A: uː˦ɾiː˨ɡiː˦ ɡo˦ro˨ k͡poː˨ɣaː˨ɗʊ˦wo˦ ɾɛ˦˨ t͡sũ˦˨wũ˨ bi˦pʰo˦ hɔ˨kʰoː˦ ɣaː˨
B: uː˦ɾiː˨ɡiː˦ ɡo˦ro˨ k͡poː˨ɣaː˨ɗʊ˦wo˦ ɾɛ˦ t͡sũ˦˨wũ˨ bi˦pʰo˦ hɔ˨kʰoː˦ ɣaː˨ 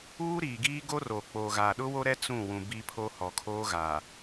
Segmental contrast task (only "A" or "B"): B